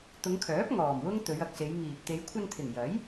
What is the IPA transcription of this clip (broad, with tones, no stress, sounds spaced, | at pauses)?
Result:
t̪ ʊ˨˧ ŋ kʰ œː˨˥ p̚ ŋ ɔː˨˩ m w ʊ˥ ŋ t̪ ɵ˨˧ ɥ ɐ˨ k̚ s e˨˧ j ŋ iː˨ p̚ t̪ e˨˧ j kʷʰ ɐ˧ n t̪ʰ ɪ˨˩ ŋ j ɐ˨˥ j